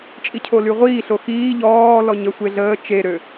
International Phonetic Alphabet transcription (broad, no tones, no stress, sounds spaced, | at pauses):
t͡ʃʼ i cʰ o l y ʁʷ iː ɬ o x iː ʎ ɔː l ɔ ɲ ə sʷ e ɮ əː t͡ʃ e ɾ ø